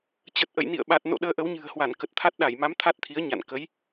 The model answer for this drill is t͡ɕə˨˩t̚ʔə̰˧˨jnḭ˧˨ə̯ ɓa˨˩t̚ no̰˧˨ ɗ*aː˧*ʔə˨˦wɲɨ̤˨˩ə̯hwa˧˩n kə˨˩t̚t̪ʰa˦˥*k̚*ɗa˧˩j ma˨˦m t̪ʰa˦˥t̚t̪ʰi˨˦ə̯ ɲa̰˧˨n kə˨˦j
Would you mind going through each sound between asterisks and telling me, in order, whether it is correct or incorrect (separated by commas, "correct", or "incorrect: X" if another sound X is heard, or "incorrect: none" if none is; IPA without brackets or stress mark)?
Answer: incorrect: əː˧, incorrect: t̚